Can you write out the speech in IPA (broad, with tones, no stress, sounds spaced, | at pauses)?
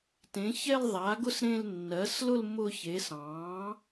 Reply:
t ẽ˩˥ ç ɛ˥˧ l ðˤ a˩˥ ɡ ʊ˥˧ s ɾ ẽ˥˧ l nː ɜ˩˥ s l ʊ˥˧ l m ʊ˥˧ ç e˩˥ s ɑ̃˩˥